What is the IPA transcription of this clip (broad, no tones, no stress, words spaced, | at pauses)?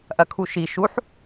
ʔɐkʰuʃi ʃuħ